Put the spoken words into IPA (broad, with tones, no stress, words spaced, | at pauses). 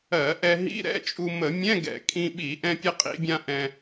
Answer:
ɜ˧˩˧ʔɛ˧ ɦḭ˧˥˧ɾɛ̰˧˥˧t͡ʃʼu˧ mə˧˩˧ mʲɛ̃˧˥˧ɡɛ̰˧˩˧ kʼĩ˧ɓi˧˩˧ ʔɛ̃˧pʲə˧qʼḭ˧˩˧bʲã˧ ʔɛ̃˧